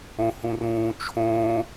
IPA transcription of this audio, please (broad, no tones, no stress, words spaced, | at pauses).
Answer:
õhũrũː t͡ʃʰõː